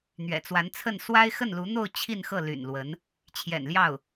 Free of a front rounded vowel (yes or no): no